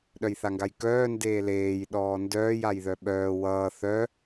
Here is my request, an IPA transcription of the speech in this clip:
ɗ œ j θ a ŋ ɡ a j k œː n d eː l eː j ɗ ɔː n d œː j a j ð œ ɓ œː w ʌː θ œ

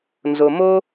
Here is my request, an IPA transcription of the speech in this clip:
n z o˨ m o˦

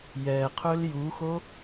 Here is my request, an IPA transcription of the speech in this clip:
j ɛ qʰ ɵ l j u x o

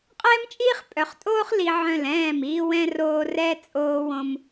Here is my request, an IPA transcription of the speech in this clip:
qʼ ɛː˦ m t͡ʃʼ iː˦ χ pʼ œ˨ χ tʼ oː˦ χ l i˨ ʕ œ̃˦˨ l ɛ̃ː˦˨ m iː˦ w ɛ̃˦ r oː˦ r ɛ˦ t͡sʼ oː˦ w õ˦ m

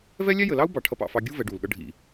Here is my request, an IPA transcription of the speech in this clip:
v ɛ˦ lʲ æ˦ j ə˨ l ɑ˦ u̯ b ɑ˨ ʈʰ ʌ˧ p ɑ̰˨ f ɑ˧ ɡʲ u˦ v ɛ˨˦ ɖ u˨ l ɠ ʌ˦ ɖʱ ḭ˨

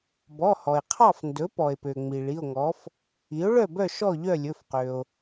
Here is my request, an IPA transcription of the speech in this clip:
b ɔ˩˧˩ h ɔ˩ e̯ qʰ ɑ˥˨ f n d ɵ˩˥ p ɔ˩ e̯ p ø˩ ŋ͡m i˩ ɭ i˩˧˩ o̯ ŋ ɔ˩˥ f | i˩˥ o̯ ɭ œ˥˨ b œ˥˨ ʃ ɔ˥˨ ʎ œ˥˨ lʲ ɵ˩˧˩ f q ø˩ o̯

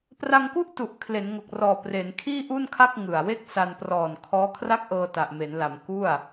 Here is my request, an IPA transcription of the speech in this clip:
p r a˧ ŋ k u˥˩ ʔ t u˨˩ ʔ kʰ l e˩˦ n ŋ o˨˩ k̚ r ɔː˨˩ p r e˩˦ n kʰ iː˥˩ ʔ u˥˩ n kʰ a˥˩ k̚ ŋ ɯ˨˩ a̯ w e˥˩ k̚ s a˧ n p r ɔː˨˩ n kʰ ɔː˦˥ kʰ r a˥˩ k̚ ʔ ɤː˧ t a˨˩ ʔ m e˩˦ n l a˩˦ m k u˥˩ a̯

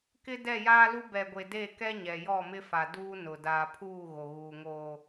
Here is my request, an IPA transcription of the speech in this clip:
k ɪ˦ d ɛ˦˨ j aː˦ l u˦ b ɛ˨ ɡʷ e˨ d e˦˨ k ɛ˦ ɲ ɛ˨ j ɔ˦˨ m ɪ˦ f a˨ d uː˦ n ʊ˨ d aː˨ pʰ uː˦˨ ɣ o˨ ɣ uː˨ ŋ oː˨

